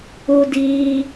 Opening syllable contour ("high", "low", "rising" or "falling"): high